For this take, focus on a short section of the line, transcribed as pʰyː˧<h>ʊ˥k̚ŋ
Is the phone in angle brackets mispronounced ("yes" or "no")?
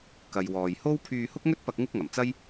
no